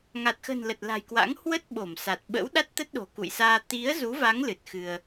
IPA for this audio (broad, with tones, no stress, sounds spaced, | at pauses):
ŋ a˨˩ t̚ x ə̤˨˩ n l ə˨˩ t̚ l a̤˨˩ j k w a̰˧˥ ŋ h w ə˦˥ t̚ ɓ o˧˩ m s a˨˩ t̚ ɓ ə̰˧˥ w ɗ a˦˥ t̚ t̪ ə˦˥ t̚ ɗ o̤˨˩ k ṵ˧˨ j s aː˧ t̪ i˨˦ ə̯ z u˨˦ v a˨˦ ŋ l ɨ˨˩ t̚ x ɨ˧ ə̯